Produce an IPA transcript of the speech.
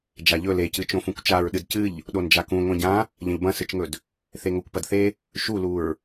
d͡ʒ a ʎ ɵ l e c ɨ t͡ʃ õ f ũ kʷ t͡ʃ a ɹ ɗ ɨ d c ɨ ʎ | ɗ o n d͡ʒ a k ũ ŋʷ ẽ ɟ ã | ʎ ɐ̃ ʎ b ɐ̃ s ɨ t͡ʃ ŋ ɵ d | θ e ŋ o kʷ p ɐ d θ e | ʃ u l u ɹ

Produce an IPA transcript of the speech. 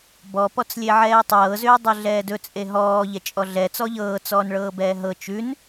b ɔ p ɔ t͡s lʲ e ʕ ɛː tˤ ɤː z ʏː dˤ ɵ ɮ ɛː d ɵ t͡sʼ e ɦ ɔː ʎ ɛ t͡ʃʼ ɔ ɮ ɛ t͡s ɔ ʎ ɤː t͡s ɔː n ɭ ɤː b ɛː ɦ ɤ t͡ʃ ʉ n

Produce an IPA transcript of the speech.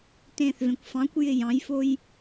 t ẽː θ v ẽ kʷ f ɑ̃ kʷ j ɪ j ɑ̃ j f o j

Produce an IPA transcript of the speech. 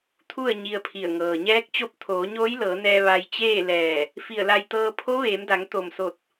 t̪ʰ u˥˨ ə̯ ɲ i˧ ə̯ pʰ i˧˩ ə̯ ŋ ɤː˩ ɲ ɛː˧˥ k̚ t͡ɕ o˧˥ p̚ t̪ʰ oː˩˧ ɲ oː˧˥ j l ɤː˩˧ n ɛː˧ ʋ a˧ j t͡ɕ eː˥˨ l ɛː˧˩ | f i˧˩ ə̯ l a˧ j t̪ ɤː˧ pʰ o˧˥ ʋ eː˩˧ m d a˩˧ ŋ t̪ o˧˩ m s o˧˩ t̚

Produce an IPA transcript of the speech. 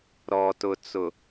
ɾ ɔ˨ t ʊ˨ t͡s ʊ˨

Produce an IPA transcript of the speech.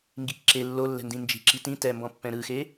ŋ ɡ i k ǁ e lː o lː ɛ̤ n d ĩ n d͡ʒ i̤ ǁ i t ĩ t ɛ m b ɔ̃ pː ɛ̃ ɾ ɯ x e

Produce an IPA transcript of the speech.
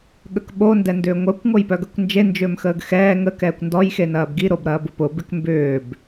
ɠ ə k ɓ o n d ɛ n d ʏː ŋʷ œ kʷ ŋ o j p œ ɡ ɐ kʷ n d͡ʒ e n d͡ʒ ʏː m x əː ɡ x ɛː ŋ ə k ɛː kʷ n d ɔ j x e n ɐː b ɡ i ɾ o b ɾ ɐː b ʊ p ʊ b ɪ k m b ʏː b

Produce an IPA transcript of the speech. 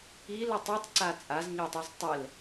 i l ɯ tˤ o tˤ ǀ a t͡sʼ a z ɲ ɔ tˤ i z tˤ ɛ l

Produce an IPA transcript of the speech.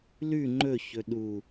l ʉ ŋ͡ǃ ɵ ç ɵ ɗ u

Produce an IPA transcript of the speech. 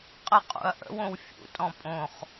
qʼ ə qʼ ṵ ɐ̯ ʔ ə̰ w õ w fʲ ṵ tʼ ɔ̃ pʼ õ χ

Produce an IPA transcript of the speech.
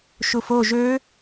ʃ u f o ʒ ø

